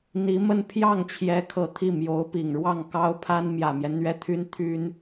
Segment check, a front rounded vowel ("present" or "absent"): present